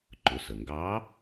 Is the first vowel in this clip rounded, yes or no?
yes